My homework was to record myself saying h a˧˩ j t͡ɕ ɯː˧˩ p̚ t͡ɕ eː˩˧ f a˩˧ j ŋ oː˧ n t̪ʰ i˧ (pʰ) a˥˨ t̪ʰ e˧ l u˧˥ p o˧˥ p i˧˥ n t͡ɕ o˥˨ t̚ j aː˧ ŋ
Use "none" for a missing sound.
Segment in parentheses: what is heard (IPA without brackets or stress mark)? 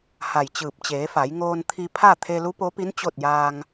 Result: pʰ